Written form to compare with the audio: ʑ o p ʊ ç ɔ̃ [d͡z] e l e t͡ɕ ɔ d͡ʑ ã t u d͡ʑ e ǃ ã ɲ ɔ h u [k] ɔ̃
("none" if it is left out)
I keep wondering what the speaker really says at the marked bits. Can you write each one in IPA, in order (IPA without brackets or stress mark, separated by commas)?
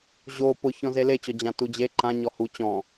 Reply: z, t͡ɕ